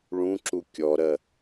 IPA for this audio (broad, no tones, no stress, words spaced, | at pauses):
ɭũǁu kʲɔɾɜ